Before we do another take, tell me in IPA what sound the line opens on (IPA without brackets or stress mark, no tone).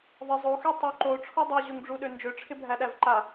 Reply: ðˤ